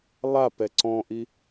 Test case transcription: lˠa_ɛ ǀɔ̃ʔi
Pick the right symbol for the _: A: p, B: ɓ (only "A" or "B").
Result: A